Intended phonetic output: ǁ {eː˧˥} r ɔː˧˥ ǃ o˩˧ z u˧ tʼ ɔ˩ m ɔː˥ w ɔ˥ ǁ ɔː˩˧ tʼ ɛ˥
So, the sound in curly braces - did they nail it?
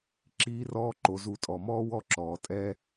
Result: no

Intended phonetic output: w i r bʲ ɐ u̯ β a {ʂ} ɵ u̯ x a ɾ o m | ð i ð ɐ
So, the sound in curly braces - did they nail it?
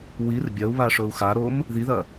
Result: yes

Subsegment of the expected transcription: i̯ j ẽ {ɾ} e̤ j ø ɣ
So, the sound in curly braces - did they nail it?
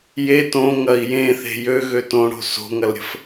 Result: no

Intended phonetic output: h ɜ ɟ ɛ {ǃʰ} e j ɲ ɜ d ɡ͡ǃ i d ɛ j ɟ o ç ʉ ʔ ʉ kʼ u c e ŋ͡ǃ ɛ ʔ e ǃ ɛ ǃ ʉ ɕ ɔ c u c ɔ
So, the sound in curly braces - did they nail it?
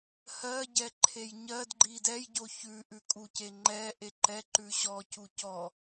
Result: yes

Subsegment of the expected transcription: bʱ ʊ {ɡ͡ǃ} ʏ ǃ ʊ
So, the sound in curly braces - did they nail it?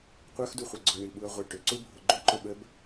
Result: yes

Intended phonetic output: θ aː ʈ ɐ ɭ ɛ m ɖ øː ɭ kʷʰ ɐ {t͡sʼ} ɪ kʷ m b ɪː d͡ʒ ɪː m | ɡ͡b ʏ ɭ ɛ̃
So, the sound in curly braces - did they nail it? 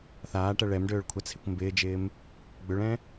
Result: no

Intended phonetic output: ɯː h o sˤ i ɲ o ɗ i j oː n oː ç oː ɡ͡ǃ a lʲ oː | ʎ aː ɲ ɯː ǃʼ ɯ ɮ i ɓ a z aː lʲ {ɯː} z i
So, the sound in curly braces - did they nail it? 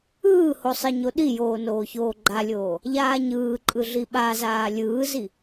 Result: yes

